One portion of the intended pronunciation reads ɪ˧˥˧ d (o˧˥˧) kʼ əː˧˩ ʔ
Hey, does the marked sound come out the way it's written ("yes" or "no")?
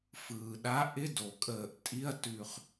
no